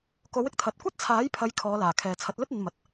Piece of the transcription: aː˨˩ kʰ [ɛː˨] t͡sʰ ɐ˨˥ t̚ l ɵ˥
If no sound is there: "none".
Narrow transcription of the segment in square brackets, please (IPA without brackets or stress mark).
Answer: ɛː˨